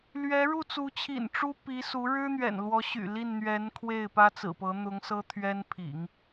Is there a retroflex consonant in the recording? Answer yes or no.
yes